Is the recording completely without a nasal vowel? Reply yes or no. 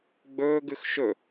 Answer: yes